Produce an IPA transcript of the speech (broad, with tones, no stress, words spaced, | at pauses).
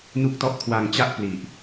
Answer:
nu˥˩k̚tɔ˥˩ʔ kʰwa˧ŋ t͡ɕa˥˩ʔpli˨˩ʔ